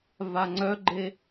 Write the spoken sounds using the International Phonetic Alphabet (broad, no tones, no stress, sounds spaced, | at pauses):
v a ŋ͡ǀ œ ɡ͡ǃ e